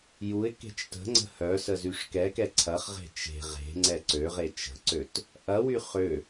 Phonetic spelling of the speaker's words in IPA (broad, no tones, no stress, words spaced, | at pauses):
juɪ̯ ke̤t͡ʃtə̤ŋ͡ǀə̤ hœsə zyʂkɛkɛ ǀʰɐχʁe̤ t͡ʃe̤ ʁe̤ŋ͡ǀɛ ǀøʁe t͡ʃə̤ǀøt | ʔɐwy χø